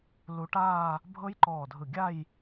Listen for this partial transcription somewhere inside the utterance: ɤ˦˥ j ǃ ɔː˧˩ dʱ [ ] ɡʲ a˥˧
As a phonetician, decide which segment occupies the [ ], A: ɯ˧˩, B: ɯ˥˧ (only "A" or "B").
A